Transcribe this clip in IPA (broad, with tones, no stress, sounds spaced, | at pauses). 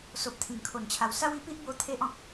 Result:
s o˨ p̚ t̪ʰ ĩ˨˩ ŋ kʰ o˨˩ n t͡ɕʰ a˨˩ w s a˦ w i˧ p i˦ ʔ b o˦ t̪ʰ e˦ ʔ ɔ̃˨ k̚